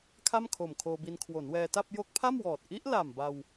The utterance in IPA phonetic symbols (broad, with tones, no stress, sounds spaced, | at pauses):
kʰ a˥˩ m kʰ o˨˩ m kʰ oː˧ b i˧ n kʰ w o˩˦ n w ɛː˧ t a˥˩ p̚ j o˦˥ k̚ pʰ a˥˩ m w ɔː˨˩ t̚ ʔ i˦˥ ʔ l a˨˩ m b a˧ w